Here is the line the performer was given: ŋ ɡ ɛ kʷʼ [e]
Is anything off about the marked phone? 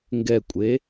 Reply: no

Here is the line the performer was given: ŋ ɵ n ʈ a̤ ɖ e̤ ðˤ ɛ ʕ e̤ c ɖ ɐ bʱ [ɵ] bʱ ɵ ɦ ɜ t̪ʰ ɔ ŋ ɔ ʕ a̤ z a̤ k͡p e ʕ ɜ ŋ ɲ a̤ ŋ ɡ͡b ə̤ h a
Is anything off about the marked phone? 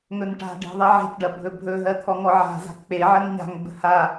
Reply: no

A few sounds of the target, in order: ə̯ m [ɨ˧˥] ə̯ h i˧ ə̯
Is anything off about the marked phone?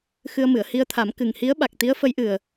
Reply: yes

